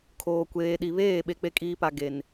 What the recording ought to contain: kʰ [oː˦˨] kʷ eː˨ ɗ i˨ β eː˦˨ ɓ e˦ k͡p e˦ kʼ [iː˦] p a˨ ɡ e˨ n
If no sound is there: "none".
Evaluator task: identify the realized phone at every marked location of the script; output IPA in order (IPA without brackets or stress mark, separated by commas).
oː˨, iː˦